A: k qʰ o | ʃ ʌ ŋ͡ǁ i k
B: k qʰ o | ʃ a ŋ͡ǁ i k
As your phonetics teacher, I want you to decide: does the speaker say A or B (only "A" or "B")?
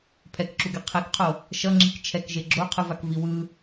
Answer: A